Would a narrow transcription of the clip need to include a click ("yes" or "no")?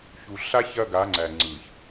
yes